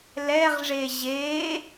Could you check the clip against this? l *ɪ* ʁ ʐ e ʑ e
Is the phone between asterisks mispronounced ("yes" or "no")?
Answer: yes